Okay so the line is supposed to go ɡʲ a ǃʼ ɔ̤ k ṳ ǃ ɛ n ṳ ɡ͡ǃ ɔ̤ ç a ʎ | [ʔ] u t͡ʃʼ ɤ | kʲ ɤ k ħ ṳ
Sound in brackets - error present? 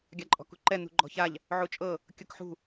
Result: yes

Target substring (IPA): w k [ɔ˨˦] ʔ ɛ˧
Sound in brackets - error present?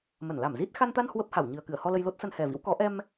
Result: no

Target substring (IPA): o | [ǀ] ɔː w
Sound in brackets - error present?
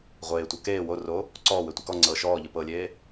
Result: no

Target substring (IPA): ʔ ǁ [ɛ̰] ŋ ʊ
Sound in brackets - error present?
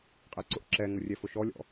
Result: yes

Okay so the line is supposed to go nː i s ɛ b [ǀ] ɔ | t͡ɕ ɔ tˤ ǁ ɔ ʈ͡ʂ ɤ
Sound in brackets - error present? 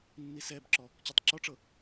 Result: yes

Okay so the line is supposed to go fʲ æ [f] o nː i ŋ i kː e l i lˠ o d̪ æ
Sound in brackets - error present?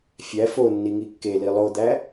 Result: no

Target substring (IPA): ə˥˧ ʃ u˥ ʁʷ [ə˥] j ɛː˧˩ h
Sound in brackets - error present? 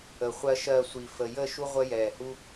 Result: no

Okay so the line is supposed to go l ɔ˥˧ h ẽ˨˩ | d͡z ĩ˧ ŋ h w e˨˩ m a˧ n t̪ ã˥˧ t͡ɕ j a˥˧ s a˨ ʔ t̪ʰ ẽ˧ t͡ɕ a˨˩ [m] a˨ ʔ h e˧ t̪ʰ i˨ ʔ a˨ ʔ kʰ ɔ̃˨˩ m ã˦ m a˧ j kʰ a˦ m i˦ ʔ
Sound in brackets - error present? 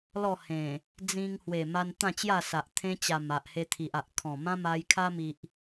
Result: no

